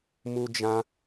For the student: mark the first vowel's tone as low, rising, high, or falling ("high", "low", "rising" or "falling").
high